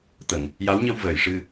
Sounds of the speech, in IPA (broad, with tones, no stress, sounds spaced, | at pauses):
t̪ ə˨˩˨ ŋ | j a˧˥ w ɲ ə˧ w v əː˨˩˨ j ʂ ɨ˧